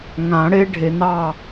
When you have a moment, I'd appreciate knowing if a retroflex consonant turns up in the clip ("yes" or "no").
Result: yes